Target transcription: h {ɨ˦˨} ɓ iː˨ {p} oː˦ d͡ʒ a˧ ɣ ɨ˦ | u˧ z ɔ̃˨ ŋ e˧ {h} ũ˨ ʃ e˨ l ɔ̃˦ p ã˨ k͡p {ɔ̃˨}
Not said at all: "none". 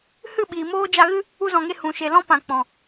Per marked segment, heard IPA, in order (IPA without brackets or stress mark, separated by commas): ɨ˦˨, m, h, ɔ̃˨